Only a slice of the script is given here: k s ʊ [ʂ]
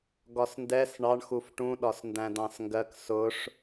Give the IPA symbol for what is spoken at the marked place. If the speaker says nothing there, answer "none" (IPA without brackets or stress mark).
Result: ʂ